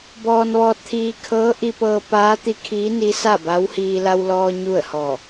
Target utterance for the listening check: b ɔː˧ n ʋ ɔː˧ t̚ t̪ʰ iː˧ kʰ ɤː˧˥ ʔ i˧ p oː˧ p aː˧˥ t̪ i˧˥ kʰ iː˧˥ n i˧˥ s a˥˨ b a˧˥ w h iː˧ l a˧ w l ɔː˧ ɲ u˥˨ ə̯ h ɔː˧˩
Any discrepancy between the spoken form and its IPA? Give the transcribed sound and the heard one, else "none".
oː˧ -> ɤː˧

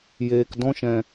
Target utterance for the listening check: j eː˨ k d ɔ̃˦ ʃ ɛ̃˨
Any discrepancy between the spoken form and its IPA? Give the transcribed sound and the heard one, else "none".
none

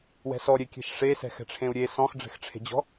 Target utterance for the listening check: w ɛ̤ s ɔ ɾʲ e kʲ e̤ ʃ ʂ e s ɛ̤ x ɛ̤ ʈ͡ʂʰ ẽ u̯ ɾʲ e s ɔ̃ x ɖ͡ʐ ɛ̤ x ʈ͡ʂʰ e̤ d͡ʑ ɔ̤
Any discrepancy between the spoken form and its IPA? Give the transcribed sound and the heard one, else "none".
none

